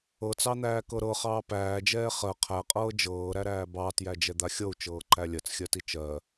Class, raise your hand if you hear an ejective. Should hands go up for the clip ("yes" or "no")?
yes